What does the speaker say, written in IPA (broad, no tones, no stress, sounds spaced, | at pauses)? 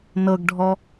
n ɤ ɡ ɖʱ ɔ